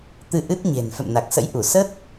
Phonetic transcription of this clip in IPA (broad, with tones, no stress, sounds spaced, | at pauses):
t̪ ɨ˧ ʔ ɨ˦˥ t̚ ɲ e̤˨˩ n f ɛ̰˧˨ m n a˨˩ k̚ s ə̰˧˥ j ʔ u˧˩ s ə˦˥ t̚